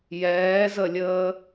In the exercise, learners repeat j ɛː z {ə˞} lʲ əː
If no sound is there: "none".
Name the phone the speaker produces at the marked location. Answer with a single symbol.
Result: ə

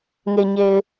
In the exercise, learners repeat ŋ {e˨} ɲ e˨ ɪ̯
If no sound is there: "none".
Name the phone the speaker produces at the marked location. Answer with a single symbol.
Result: e˨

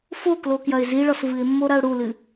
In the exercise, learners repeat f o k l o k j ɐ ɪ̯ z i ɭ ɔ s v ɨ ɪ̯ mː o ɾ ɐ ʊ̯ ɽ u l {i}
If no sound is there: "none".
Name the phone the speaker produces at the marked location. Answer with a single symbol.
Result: ɨ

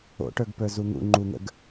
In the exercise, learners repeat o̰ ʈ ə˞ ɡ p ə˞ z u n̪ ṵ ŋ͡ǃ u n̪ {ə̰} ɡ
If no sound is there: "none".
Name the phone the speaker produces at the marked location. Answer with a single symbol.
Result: ə̰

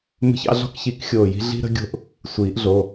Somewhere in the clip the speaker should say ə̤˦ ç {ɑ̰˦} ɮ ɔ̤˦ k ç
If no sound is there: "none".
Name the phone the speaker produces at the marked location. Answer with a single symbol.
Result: ɑ̰˦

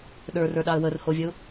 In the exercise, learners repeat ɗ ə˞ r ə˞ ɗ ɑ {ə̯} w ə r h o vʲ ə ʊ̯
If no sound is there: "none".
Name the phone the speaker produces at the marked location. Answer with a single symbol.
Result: ə̯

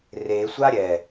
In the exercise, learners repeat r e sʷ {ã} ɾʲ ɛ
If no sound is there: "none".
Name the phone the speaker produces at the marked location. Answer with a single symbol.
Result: a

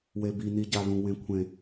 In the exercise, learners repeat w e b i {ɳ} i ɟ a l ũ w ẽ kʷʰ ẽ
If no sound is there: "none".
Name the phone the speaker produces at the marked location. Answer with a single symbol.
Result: n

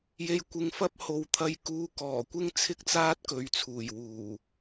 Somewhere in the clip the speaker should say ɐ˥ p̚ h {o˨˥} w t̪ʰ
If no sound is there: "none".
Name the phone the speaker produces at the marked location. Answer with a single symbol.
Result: o˨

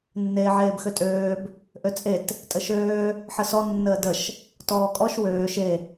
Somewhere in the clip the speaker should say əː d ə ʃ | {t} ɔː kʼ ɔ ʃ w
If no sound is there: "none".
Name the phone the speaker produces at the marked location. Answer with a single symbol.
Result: t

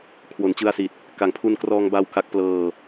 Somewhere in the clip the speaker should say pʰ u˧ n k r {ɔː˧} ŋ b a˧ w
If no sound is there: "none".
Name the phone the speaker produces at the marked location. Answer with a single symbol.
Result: ɔː˧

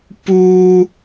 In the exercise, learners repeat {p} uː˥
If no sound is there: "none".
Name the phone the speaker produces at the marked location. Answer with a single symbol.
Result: p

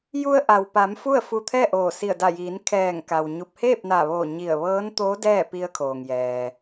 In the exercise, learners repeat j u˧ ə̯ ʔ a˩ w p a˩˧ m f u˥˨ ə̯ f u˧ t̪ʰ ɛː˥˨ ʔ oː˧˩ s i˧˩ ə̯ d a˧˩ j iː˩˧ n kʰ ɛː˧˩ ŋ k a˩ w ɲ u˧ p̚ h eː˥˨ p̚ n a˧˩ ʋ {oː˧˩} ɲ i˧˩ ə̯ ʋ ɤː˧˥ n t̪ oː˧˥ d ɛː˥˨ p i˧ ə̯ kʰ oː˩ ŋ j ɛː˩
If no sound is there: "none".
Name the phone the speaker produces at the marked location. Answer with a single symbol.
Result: oː˧˩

